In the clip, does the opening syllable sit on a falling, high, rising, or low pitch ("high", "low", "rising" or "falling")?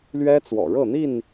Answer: high